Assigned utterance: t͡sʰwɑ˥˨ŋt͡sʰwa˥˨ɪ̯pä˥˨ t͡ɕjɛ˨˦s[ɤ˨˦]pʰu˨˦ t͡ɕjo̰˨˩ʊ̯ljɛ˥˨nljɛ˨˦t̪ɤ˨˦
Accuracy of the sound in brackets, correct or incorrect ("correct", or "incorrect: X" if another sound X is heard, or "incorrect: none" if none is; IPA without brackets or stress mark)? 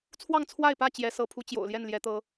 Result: correct